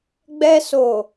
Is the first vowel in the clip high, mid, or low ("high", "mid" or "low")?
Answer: mid